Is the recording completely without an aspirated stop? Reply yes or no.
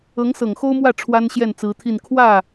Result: no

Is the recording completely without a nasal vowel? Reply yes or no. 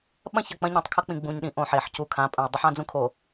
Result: no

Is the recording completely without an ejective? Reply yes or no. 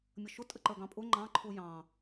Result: no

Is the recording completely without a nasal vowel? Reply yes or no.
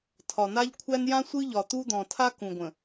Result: no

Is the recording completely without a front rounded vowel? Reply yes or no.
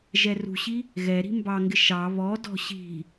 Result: yes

